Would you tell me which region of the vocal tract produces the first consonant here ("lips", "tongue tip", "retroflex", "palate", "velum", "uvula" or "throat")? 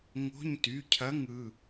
velum